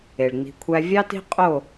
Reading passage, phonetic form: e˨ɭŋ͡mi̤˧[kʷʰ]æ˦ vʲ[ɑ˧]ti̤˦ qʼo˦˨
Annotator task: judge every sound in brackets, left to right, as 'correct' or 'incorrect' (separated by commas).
correct, incorrect